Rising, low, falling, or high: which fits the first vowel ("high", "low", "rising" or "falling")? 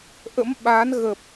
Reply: rising